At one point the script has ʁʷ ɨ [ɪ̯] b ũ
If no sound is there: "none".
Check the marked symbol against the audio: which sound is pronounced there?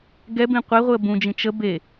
ə̯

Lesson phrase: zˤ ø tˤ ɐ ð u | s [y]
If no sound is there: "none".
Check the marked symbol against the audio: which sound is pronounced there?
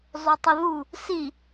i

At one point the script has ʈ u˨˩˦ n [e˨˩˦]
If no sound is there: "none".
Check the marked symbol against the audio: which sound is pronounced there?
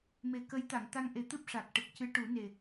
e˨˩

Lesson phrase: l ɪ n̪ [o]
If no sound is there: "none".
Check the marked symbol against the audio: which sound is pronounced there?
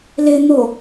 o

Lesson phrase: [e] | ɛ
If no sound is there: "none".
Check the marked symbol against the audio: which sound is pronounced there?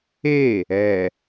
e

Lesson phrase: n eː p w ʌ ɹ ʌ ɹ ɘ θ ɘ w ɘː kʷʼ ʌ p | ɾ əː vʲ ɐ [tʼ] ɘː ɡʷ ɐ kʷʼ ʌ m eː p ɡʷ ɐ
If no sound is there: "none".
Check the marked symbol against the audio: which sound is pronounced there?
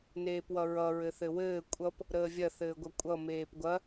θ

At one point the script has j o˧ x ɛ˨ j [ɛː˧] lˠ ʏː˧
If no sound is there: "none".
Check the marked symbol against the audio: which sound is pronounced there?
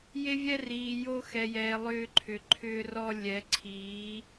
ɛː˨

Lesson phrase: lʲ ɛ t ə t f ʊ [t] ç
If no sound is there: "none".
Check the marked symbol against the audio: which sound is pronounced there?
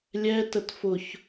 none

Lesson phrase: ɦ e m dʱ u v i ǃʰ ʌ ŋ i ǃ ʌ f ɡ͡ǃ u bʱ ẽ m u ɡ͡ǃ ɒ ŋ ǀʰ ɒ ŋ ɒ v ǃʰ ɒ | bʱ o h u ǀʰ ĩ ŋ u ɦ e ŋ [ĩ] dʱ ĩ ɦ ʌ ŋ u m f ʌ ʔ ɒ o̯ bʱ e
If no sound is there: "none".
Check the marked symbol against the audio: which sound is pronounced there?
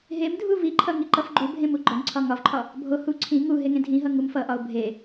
ẽ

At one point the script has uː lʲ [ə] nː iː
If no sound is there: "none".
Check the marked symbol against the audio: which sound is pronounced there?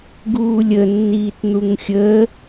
ə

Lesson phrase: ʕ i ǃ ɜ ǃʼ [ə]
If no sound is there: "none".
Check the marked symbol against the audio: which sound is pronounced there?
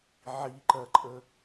ə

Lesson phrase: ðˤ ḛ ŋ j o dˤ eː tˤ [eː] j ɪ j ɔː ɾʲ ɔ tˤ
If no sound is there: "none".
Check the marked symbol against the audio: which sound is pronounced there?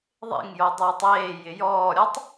eː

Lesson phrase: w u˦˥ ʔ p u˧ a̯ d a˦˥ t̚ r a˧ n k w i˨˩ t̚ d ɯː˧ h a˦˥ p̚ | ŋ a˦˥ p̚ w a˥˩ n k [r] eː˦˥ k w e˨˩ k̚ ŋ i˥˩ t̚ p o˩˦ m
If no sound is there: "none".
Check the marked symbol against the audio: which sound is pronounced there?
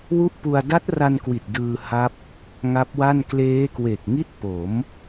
l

